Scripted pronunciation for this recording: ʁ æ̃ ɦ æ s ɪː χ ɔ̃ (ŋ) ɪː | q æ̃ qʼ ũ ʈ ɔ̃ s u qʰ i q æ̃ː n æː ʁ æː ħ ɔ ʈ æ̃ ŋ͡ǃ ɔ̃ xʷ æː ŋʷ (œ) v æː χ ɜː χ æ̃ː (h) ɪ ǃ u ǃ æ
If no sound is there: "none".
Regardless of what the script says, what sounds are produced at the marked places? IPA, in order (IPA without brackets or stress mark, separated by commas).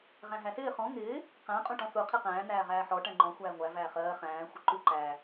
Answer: ŋ, æ, xʷ